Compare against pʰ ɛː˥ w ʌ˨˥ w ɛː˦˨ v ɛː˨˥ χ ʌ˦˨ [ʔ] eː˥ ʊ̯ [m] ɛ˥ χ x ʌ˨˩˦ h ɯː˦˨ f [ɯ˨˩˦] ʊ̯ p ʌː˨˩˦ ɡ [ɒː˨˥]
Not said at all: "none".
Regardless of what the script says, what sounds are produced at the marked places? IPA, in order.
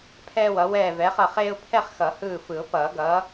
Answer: χ, pʰ, ɯ˨˩˦, ʌː˨˥

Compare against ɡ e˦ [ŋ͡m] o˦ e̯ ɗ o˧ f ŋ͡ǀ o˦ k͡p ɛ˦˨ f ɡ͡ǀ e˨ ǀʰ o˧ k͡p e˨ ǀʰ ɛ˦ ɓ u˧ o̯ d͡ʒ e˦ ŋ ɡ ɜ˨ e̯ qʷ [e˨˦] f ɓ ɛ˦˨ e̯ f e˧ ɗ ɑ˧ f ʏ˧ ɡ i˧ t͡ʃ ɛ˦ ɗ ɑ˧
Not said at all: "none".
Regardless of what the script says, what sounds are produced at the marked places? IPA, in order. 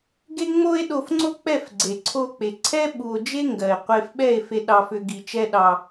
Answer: ŋ͡m, e˧

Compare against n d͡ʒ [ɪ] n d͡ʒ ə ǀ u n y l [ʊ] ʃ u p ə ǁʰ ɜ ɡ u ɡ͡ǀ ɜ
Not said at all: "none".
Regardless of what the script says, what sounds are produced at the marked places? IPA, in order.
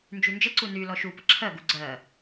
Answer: y, ɔ

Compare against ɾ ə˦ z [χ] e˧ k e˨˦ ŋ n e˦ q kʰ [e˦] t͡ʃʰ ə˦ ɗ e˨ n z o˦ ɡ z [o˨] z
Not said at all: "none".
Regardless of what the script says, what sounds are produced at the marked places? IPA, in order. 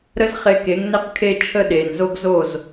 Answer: χ, e˦, o˦˨

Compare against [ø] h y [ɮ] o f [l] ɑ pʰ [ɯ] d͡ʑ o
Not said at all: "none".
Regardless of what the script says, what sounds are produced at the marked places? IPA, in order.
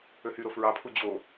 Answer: ø, ɾ, ɹ, u

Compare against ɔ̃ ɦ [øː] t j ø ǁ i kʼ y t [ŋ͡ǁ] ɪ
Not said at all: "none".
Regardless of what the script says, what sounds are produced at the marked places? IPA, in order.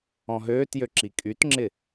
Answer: øː, ŋ͡ǁ

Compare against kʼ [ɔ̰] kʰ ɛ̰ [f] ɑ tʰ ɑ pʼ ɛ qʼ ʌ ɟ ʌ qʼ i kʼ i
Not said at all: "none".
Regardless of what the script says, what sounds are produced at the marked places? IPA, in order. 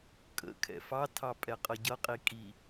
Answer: ə̰, f

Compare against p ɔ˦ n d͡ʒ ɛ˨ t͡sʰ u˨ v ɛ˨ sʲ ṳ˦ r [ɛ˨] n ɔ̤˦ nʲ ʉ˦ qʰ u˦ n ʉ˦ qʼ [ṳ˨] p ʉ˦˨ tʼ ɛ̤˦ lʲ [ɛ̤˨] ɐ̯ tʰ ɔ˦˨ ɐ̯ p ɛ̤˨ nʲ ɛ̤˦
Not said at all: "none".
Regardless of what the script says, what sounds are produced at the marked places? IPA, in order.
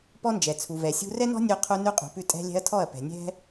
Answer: ɛ˦, ṳ˨, ɛ̤˦

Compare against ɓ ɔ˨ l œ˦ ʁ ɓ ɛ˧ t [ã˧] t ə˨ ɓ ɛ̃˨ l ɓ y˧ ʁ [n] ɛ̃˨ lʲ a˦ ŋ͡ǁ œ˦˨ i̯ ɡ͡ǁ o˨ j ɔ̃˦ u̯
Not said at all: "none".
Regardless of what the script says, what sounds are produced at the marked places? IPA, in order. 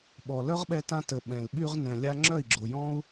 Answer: ã˧, n

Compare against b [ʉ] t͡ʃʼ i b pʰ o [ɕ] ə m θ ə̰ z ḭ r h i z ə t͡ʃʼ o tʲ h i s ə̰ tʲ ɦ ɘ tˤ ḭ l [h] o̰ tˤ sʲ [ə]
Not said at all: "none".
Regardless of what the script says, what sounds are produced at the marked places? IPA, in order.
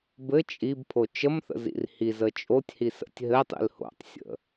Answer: ɘ, t͡ʃ, h, ə̰

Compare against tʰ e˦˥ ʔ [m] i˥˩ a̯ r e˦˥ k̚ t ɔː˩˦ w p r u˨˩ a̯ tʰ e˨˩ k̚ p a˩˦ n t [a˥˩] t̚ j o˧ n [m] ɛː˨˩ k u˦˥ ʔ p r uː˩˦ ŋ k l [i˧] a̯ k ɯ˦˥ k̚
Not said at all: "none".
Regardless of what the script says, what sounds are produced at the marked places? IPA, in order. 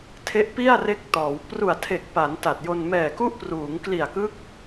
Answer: p, a˨˩, m, i˨˩

